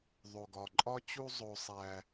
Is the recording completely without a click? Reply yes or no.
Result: no